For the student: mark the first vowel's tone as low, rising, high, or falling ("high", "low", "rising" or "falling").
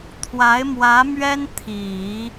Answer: rising